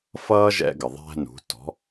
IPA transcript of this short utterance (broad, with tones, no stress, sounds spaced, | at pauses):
f ʌː˥ ʒ ɛ̰˧ ɡ ə˩ ðˤ æ̤˧ n ṳ˩˧ t ɔ̤˩˧